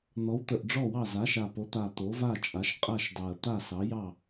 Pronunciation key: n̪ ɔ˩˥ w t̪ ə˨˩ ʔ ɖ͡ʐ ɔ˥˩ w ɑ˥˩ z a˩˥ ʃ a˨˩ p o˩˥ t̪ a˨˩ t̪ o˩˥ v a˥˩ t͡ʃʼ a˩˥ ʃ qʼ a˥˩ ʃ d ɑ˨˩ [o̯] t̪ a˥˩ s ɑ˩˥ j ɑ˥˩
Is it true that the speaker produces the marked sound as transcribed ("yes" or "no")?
no